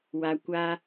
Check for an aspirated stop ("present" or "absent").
absent